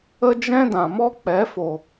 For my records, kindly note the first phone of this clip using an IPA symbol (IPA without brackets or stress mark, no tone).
ə